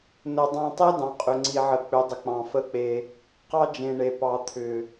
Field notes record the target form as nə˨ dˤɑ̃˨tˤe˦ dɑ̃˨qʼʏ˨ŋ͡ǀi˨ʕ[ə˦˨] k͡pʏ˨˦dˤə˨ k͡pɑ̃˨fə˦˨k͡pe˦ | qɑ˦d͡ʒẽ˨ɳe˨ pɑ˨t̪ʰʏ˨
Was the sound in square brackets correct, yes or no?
no